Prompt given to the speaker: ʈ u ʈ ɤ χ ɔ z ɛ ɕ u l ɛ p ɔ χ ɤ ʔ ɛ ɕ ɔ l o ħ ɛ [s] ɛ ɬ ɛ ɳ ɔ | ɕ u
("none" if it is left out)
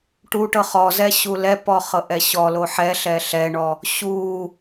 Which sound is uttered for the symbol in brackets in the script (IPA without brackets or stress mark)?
ɬ